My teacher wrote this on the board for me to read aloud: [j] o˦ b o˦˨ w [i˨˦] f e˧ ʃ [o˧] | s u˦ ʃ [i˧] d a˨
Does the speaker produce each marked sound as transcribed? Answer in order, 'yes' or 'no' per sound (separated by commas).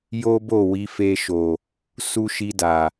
yes, yes, no, yes